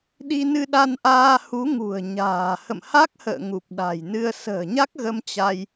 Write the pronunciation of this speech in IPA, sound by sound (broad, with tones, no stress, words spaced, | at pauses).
ɗi˧ nɨ˧ɗa˧nʔaː˧ hu˨˦ŋṳ˨˩ə̯ ɲa̤ː˨˩ hə̰˧˨mha˦˥k̚hə̰ː˧˨ ŋu˨˩p̚ɗa̤˨˩jnɨ˧ə̯ sə̤ː˨˩ɲa˦˥k̚ɣə˧m t͡ɕa˧j